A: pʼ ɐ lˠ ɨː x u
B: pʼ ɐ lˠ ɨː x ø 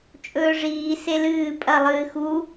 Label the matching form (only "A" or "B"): A